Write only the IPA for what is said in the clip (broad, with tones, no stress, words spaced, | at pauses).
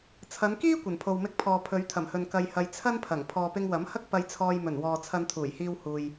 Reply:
t͡sʰɐ˨˧nkiː˥ kʷɐ˨˩npʰo˨wmɪ˧k̚pʰɔː˨ pʰɵ˨˧ɥt̪ʰɐ˨˩mhɵ˨n kɐ˧jhɐ˧j t͡sʰɐ˥npʰɐ˨˩ŋ pʰɔː˨pɪ˧ŋwɐ˨˥mhɐ˥k̚ pɐ˧jt͡sʰɔː˧jmɵ˨˩nwɔː˨ t͡sʰɐ˧nt̪ʰuː˨˩jhiː˧w huː˨j